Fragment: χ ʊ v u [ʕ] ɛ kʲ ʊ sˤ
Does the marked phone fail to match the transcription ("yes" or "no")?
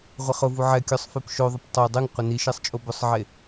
no